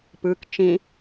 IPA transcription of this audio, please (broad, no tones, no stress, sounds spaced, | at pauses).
p ɯ k t͡ʃ ĩ